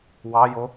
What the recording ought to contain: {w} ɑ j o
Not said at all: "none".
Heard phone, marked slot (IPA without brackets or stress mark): w